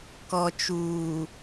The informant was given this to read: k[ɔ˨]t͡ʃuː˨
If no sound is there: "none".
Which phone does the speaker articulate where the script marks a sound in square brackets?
ɔ˨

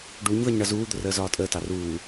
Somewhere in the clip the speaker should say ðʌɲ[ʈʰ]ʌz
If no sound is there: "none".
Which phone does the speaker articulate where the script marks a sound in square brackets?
ɳ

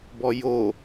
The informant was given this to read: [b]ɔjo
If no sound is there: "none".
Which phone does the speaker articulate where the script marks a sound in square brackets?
b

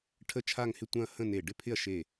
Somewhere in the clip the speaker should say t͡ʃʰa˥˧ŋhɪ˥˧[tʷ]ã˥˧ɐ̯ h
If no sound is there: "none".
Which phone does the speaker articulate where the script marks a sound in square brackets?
tʷ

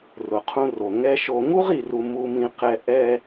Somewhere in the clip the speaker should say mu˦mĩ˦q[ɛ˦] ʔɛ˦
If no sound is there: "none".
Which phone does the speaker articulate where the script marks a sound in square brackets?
ɛ˦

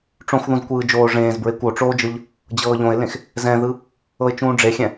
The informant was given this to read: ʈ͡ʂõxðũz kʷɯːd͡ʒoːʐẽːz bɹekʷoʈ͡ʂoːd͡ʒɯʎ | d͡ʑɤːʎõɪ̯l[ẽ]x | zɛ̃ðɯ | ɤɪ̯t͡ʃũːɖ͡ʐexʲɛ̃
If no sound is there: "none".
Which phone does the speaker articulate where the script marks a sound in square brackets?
ẽ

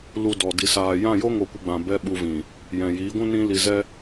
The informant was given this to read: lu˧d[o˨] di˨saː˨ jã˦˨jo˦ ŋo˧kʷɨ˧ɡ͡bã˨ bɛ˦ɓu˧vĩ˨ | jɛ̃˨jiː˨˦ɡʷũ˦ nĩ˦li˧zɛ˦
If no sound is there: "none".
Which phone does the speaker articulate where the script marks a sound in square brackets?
ɔ˨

